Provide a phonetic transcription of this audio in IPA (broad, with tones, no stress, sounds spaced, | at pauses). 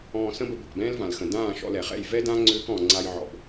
ɔ̃ː˧ s ə̃˦ b ə˧ b ɔ̤˨ k b ɛ̃ː˦ l v ã˨ l x ə̃˨ d ãː˦˨ ʃ ɔ̰˧ l ɛ˨ χ ɛ̰˦˨ j v ɛ˦ d ã˦ ŋ͡ǀ ʏː˦ k ɔ̃˨ ŋ͡ǀ a˧ j ʕ ɔ̰˨ b